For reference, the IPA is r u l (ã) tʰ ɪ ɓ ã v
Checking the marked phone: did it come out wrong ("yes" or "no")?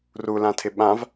no